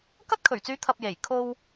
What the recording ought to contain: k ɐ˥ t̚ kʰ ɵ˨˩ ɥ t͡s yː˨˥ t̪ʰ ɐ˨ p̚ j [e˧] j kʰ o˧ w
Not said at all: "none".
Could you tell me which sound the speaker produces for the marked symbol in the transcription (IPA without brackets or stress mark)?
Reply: e˨˩